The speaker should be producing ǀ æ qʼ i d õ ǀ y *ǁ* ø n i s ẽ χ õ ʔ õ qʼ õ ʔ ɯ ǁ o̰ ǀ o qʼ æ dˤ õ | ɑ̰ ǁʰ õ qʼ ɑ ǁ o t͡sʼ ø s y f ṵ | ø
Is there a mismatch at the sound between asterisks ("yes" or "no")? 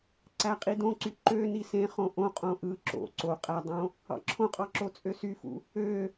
yes